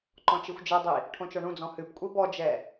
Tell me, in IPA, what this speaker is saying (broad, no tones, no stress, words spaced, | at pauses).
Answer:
ǃɔ̃t͡ʃixʷd͡ʒɛdˤi | ʈʰõt͡ʃɔɳũd͡zɔ̃ hɨpkʷʼi bɔd͡ʒɛ